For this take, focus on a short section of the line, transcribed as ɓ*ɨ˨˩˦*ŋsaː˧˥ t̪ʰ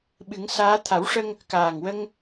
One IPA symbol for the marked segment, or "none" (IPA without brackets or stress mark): ɨ˨˩˦